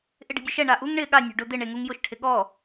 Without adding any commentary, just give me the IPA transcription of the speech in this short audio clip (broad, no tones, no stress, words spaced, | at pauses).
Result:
ʔɪɖe̤dʲʊʃɛ ɳaʔuŋ ɳɪ ɠanʲo̤ ɖʊ d̪ɪɳeŋuŋ jʊʃʈʰɪ ɠɔ